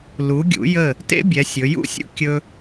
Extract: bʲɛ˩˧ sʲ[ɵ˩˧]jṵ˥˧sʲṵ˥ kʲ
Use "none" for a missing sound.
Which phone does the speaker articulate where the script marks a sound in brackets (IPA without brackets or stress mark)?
ɵ˩˧